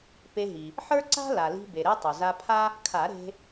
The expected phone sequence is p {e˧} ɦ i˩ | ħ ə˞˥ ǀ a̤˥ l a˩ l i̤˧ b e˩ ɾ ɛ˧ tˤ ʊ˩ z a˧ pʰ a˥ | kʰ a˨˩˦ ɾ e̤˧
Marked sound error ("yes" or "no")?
no